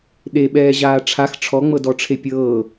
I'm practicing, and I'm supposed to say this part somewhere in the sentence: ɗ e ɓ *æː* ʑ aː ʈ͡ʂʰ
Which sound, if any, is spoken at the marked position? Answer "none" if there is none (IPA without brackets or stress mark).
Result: ɛː